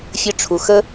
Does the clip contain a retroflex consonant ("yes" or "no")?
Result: yes